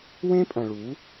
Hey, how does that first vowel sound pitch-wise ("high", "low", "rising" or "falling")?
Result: high